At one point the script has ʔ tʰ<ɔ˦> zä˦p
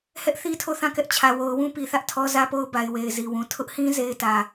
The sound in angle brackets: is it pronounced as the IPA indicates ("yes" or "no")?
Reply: yes